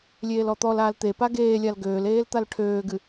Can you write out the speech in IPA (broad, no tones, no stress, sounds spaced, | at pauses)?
lʲ eː l ɔ t̪ ɔ l aː l t̪ e p a ɡ eː lʲ a l ɡ øː l eː l t̪ a l ʈʰ øː ɡ ɨ